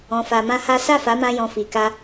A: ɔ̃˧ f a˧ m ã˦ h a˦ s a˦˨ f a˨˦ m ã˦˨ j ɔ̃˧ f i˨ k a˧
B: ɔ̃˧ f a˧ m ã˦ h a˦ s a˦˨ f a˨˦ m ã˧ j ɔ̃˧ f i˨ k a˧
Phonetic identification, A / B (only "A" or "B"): B